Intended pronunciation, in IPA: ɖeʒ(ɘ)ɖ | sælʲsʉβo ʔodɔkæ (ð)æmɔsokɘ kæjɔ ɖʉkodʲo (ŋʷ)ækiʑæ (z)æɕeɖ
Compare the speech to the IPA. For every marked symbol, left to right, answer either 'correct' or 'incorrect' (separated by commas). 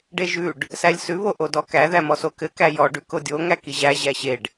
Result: incorrect, correct, incorrect, incorrect